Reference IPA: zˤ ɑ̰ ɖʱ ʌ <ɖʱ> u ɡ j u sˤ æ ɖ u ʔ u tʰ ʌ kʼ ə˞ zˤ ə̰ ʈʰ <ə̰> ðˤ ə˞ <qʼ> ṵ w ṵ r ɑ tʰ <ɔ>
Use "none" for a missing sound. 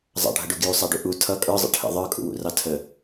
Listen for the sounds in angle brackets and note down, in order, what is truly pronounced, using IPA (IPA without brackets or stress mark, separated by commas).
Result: ɖ, ə̰, kʼ, ə